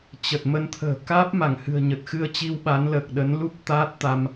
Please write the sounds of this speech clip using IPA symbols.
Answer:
t͡ɕ ə˨˩ t̚ m ə˧ n t̪ʰ ə̤ː˨˩ k aː˦˥ p̚ m a˧˩ ŋ h ɨ̤˨˩ ə̯ ɲ ə˨˩ t̚ x ɨ˧ ə̯ t͡ɕ i˧ w ɓ a˨˦ n l əː˨˩ k̚ ɗ ə˨˦ n l u˦˥ p̚ t̪ aː˦˥ t̚ t̪ a˧ m

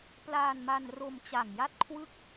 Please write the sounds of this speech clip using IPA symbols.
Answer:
p l aː˧ n m a˧ n r o˧ m t͡ɕ a˨˩ ŋ j a˥˩ t̚ kʰ w ɯ˥˩ k̚

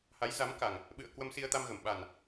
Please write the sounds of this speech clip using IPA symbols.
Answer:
h a˨˦ j z a˨˦ m k a˨˩ ŋ | ɓ ɨ̰˧˨ ə̯ k w ə˧ m s i˧ ə̯ t̪ a˧ m ɣ ə˧˩ m ɓ a˨˩ n

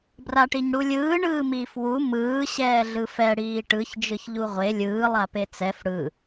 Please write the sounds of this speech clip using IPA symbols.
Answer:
b r a ʈ i ɲ ɽ u lʲ ɯː ɳ ɯː m iː f w u m ɯː ɕ ɛː ɮ ɯ f ɛ ɽ iː ʈ ɯ ç d͡ʒ ɯ ç ʎ u ʁʷ e lʲ ɯː lˠ a p e t͡s ɛ f ɽ ɯ

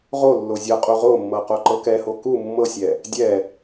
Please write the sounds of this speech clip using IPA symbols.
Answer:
ʁ o lː o zʲ ɤ qʼ u ʁ o mː ɤ q o ǃ ɤ k ɛ h o k u mː ɤ sʲ ɛ | dʲ ɛ

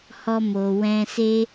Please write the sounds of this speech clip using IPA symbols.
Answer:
h ɔ˧ m o˨ w ɛ̃˧ s e˧

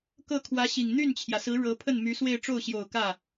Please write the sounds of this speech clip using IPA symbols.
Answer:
k ɤ˥˩ kʰ w ä˧˥ ɕ i˨˩ ŋ n̪ y˥˩ n t͡ɕʰ j ä˩ s ɹ̩˧˥ ɻ ɤ˧˥ pʰ ə˥˩ n m y˧˥ s w e˥˧ ɪ̯ ʈ͡ʂ o˥˩ ʊ̯ ɕ j o˨˩ ʊ̯ k ä˥˩

